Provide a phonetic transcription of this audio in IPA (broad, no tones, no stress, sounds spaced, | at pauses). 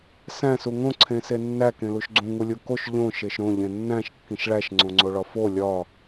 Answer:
s æ̃ s u ŋ õ ǀʰ ẽ s e nː æ k ẽ l u ʃ ɡ͡ǀ ũ ŋ u lʲ u k o ʃ ʎ õ ʃ e ʃ ɾ õ ʎ ẽ nː æ̃ ʃ kː ĩ ʃ ɭ æ ʃ ŋ͡ǀ õ ŋ͡ǀ o ɭ ɒ f o lʲ ɒ